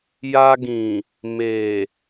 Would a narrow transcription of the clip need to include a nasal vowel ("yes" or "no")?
yes